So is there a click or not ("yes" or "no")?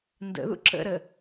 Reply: yes